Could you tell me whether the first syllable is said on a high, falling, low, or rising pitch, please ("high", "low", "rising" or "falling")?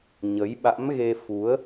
rising